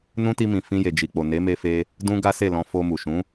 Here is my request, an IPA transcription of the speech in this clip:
n ũ˦ t i˧ m ĩ˨ f ĩ˧ j e˨ d͡ʒ i˨ k͡p o˨ n e˨˦ m e˧ f e˧ | d ũ˦ ɡ a˦ s e˦˨ l ɔ̃˧ f o˧ m u˨ ʃ ũ˨˦

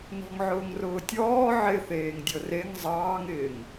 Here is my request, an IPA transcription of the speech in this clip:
n ɔ̤ ŋ ʕ ʊː ŋ r ʊː tʲ ɔː ʕ ɪ θ eː ŋ dʲ ɤ r e ŋ zˤ ɑː ŋ ɪː ŋ

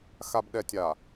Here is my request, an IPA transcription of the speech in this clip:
x a˨ b ɗ ɛ˨ tʲ a˨

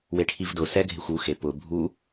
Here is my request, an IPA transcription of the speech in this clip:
w e ʈʰ i v d ʊ s ɛ ɡʱ ɪ xʷ u x e p ʊ bʱ u

